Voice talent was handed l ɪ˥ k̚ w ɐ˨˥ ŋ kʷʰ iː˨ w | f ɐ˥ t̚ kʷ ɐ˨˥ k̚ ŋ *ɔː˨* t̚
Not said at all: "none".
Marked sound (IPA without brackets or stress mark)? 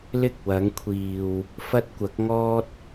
ɔː˥